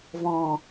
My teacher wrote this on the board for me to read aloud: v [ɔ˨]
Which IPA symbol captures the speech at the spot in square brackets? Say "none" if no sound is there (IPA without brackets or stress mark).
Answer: ɔ̃˨